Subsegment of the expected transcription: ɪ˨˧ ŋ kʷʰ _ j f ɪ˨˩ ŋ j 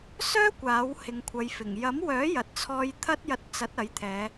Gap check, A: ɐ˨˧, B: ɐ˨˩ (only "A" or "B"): A